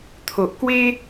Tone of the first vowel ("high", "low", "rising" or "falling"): low